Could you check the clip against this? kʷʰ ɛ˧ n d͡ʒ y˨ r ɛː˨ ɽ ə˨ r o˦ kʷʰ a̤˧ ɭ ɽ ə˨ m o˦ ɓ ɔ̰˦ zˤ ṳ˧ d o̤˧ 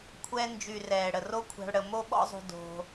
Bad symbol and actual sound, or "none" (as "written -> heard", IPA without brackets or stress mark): none